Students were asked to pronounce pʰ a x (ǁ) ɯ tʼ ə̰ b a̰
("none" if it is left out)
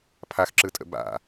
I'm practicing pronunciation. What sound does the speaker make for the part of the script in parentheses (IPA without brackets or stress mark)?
ǁ